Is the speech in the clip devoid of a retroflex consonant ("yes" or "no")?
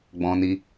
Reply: yes